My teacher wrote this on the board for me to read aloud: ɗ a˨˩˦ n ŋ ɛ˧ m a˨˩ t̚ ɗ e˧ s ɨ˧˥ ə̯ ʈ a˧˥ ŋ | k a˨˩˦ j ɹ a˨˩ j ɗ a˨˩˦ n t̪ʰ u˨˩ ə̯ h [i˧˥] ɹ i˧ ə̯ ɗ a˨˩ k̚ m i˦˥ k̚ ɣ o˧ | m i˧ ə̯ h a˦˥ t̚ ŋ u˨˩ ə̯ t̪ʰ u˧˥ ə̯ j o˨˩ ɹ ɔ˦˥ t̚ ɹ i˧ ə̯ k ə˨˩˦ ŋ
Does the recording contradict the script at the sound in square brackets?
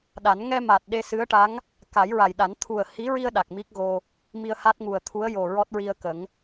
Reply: no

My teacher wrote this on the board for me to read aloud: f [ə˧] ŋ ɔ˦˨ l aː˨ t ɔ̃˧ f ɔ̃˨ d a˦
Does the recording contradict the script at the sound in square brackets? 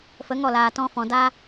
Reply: yes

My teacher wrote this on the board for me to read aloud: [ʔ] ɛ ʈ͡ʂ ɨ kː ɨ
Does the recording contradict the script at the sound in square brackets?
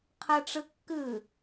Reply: yes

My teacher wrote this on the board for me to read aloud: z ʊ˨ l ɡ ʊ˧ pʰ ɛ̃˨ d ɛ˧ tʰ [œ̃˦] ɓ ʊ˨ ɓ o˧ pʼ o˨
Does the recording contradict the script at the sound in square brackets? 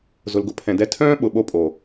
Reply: yes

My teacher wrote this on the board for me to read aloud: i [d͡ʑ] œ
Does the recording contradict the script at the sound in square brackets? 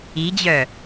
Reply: no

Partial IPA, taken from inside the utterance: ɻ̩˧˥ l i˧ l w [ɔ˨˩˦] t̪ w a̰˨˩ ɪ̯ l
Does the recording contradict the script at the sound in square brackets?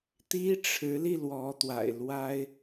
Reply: yes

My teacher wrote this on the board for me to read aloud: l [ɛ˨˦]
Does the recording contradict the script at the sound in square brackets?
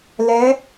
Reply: no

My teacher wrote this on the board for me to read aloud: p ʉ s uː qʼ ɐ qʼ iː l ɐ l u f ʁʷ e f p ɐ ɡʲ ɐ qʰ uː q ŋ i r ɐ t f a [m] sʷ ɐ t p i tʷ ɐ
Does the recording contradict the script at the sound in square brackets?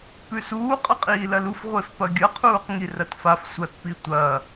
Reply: yes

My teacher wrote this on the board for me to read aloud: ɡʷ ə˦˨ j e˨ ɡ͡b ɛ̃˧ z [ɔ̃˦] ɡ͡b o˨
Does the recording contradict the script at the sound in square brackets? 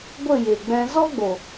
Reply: yes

